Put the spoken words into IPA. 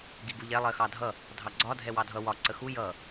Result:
ɡ i ɡ u ʎ ɛ lˠ ɜ x ɑ dʱ ʌ | dʱ ɑ ɡ͡ǀ ɒ dʱ ɛ w ɑ dʱ ʌ w ɒ ǀ ə x u j ʌ

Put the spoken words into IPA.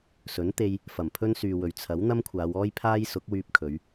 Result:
s ɵ˨˥ n t̪ e˧ j | f ɐ˨˩ m pʰ ɵ˥ n s yː˨ w ɵ˨ ɥ t͡sʰ ɐ˨˥ w n̪ ɐ˥ m kʷʰ aː˨˧ w ɔː˥ j pʰ aː˥ j s ʊ˨˥ k̚ w yː˧ p̚ kʰ ɵ˨˧ ɥ

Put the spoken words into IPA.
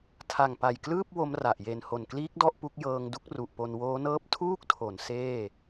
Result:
tʰ a˨˩ ŋ p a˨˩ j k l ɯː˥˩ p̚ w o˦˥ m r a˨˩ ʔ j e˨˩ n h o˨˩ n k l iː˦˥ k̚ d ɔ˥˩ ʔ p u˦˥ k̚ j ɤː˧ ŋ d u˥˩ k̚ r u˨˩ ʔ p o˧ n w oː˦˥ n ɤː˦˥ p̚ tʰ uː˥˩ k̚ tʰ o˩˦ n s eː˥˩

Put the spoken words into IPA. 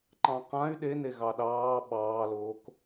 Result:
ǃ ɑ̃ q ã y̯ ɗ e n e ɣ ɑ ɗ ɑː ɓ ɑː l oː k

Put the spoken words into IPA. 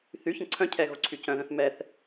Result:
θ y ç ə̃ ǀʰ œ̃ cʰ ɛ ɣ o ǀʰ y c œ̃ ð œ̃ θ m ɛ θ

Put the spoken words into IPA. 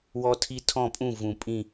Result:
w ɔ˦ tʰ i˦ tʰ ɔ̃˦˨ pʼ ũ˦˨ v ũ˨ pʼ ĩ˦˨

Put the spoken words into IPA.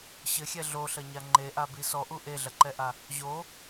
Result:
ɕ ɘ xʲ ɛ ɮ o ɬ ɐ ɲ a ŋ͡ǃ e ʔ a b i s ɔ ʔ u ʔ e ɮ ɐ ǃ ɛ ʔ a | ʑ o

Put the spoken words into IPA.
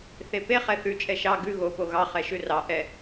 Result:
θ e p e χ ɛ θ ʉ t͡ʃʼ ɛ ʃ ɑ ɡ ʉ ɣ o p o ɣ ɑ χ ɛ ʃ ʉ r ɑ ʔ ɛ

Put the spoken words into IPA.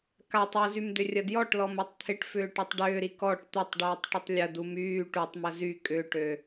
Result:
k a tˤ u z y m d ʏ rʲ ɐ d j ɔ ʈ l ɔ m u tˤ t̪ʰ ɪ ʈ f ʏː ʈ ø tˤ ɖ ʏː ɾ i k ɔ ʈ t̪ ɪ tˤ ɖ yː tˤ ʈ ʏ tˤ lʲ ɐ d u m yː ʈ u tˤ m ɐ z y kʼ ʏː ʈ ø

